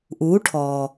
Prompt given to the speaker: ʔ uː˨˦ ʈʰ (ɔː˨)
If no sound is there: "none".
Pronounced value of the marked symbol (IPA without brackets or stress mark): ɔː˨